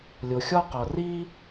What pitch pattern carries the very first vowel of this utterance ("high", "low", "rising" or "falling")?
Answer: low